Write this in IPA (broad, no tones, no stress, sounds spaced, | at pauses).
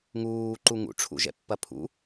ŋ uː ǃ u ŋ ṵ ʈ͡ʂʰ ṵ ʒ ɛ̰ pː ɐ pʰ ṵ